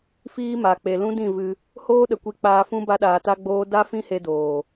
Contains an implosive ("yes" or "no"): yes